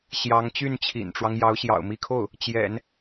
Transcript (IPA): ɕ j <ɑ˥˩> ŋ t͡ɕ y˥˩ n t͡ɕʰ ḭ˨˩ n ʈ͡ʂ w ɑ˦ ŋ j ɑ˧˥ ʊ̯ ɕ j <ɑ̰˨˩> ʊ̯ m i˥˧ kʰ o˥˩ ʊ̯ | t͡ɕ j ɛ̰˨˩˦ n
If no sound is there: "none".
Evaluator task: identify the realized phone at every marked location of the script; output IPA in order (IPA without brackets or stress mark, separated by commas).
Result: ɑ˧˥, ɑ̰˨˩